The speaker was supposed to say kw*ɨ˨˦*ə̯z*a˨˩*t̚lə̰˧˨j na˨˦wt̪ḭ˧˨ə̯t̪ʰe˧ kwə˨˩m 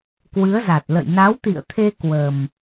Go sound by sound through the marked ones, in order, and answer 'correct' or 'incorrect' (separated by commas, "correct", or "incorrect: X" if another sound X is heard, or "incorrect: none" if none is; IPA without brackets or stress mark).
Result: correct, correct